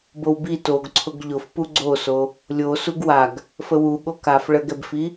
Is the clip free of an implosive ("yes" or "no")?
no